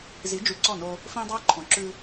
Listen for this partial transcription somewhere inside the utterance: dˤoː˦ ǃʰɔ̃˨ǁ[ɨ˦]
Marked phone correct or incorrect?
incorrect